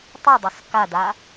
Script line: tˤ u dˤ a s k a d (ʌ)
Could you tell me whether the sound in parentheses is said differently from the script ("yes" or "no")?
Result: yes